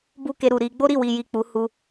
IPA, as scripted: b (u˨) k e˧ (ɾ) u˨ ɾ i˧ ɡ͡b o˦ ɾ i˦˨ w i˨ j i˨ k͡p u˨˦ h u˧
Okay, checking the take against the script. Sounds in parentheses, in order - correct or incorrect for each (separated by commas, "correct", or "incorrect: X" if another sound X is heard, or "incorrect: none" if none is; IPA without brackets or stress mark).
incorrect: u˦, correct